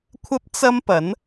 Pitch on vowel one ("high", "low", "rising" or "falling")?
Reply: high